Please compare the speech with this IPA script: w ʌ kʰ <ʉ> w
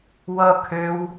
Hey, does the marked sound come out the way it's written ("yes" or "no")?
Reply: no